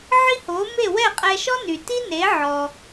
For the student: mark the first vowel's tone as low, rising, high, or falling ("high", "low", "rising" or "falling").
high